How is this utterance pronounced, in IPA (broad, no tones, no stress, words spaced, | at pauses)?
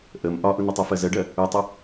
ʔəm ʔɒʔʊnɪtˤu fɜzɜɖɜ | utˤə